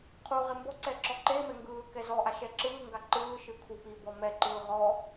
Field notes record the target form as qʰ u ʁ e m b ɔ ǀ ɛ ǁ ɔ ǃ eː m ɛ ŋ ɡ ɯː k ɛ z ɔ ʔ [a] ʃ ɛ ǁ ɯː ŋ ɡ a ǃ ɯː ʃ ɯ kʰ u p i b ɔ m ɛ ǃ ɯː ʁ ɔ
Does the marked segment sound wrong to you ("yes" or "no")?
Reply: no